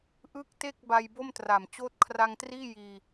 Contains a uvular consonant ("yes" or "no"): no